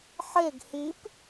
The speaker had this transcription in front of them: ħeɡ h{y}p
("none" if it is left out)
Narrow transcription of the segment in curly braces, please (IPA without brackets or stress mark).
i